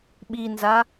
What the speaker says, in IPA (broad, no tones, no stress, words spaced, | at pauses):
ɓinza